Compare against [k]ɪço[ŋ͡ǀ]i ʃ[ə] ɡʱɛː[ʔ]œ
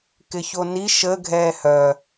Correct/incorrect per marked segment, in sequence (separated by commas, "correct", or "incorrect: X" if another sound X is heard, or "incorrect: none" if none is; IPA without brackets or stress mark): correct, incorrect: n, correct, incorrect: h